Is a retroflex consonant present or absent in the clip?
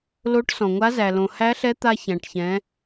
present